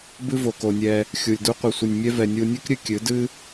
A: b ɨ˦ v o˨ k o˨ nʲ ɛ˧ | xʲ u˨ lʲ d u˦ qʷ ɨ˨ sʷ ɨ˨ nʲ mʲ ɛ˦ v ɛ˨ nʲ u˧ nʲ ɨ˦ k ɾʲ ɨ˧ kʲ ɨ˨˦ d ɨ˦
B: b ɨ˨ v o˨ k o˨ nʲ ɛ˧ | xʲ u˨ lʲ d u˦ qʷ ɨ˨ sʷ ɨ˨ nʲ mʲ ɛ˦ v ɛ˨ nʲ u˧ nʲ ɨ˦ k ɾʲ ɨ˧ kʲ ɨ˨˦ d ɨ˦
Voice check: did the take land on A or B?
A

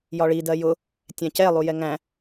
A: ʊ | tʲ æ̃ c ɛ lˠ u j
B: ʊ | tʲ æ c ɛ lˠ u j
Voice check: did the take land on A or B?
A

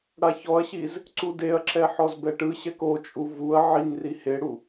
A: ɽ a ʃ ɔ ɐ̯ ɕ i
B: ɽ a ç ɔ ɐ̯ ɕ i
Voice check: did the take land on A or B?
B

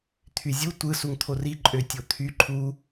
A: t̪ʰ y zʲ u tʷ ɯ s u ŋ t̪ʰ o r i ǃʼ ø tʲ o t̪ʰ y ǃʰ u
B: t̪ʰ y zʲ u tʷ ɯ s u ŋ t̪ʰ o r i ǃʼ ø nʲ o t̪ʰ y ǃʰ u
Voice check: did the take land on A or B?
A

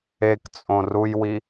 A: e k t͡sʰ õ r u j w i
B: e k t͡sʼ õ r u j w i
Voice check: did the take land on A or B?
B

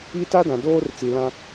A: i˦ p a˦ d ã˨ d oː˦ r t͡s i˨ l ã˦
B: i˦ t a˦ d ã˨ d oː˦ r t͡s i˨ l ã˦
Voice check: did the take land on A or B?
B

